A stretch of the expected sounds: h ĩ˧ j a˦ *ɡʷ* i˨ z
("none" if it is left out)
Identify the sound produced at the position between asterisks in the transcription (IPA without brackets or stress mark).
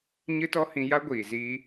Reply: ɡʷ